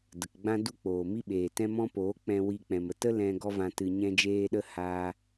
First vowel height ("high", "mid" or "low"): mid